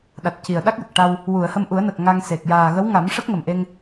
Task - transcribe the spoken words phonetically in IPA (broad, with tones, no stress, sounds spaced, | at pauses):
ɗ a˨˩ t̚ c i˨˩ ə̯ ɗ a˦˥ k̚ j ə˨˩ k̚ ʈ a˧ w | w u˨˩˨ ə̯ h ə˧ m ʔ u˨˩˦ ə̯ n ə˨˩ k̚ ŋ a˧ ŋ s e˨˩ k̚ j aː˨˩ ɣ ə˧˥ w ŋ a˨˩˦ m ʂ ə˦˥ k̚ ŋ ə˨˩ m ʔ e˧ ŋ